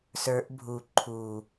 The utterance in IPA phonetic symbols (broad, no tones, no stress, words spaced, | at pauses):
sə˞ʔ bʱu ǃʰu